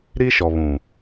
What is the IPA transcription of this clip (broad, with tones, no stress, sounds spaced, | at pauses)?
ɾ i˦ ʃ ɔ˨ β ũ˨